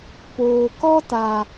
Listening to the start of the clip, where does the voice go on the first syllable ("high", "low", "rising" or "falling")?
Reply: low